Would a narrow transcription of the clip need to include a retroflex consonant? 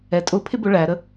yes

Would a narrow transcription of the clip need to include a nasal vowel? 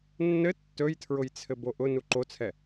no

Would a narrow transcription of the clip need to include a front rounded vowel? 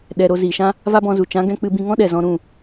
no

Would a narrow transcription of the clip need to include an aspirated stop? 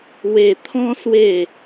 yes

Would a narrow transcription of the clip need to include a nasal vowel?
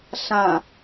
yes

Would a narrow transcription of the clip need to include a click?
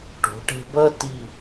no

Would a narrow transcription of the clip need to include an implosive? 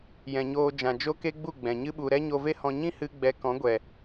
yes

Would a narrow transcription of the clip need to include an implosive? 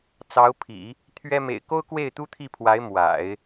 no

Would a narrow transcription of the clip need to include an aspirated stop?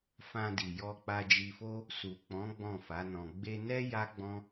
no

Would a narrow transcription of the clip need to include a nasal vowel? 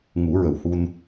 no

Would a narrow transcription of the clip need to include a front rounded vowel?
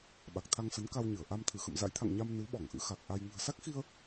no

